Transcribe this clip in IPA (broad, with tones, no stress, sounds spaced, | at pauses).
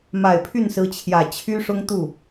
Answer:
m a˨˩ ɪ̯ pʰ y˥˩ n s ɹ̩˧˥ t͡ɕʰ j ä˨˩ t͡ɕʰ y˥ ʂ ʊ˥ ŋ t̪ u˥˩